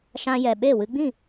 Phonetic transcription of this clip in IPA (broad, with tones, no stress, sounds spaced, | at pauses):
ʃ ã˧ j ɛ˨ ɓ e˦˨ w ɨ˧ ɡ͡b ĩ˦˨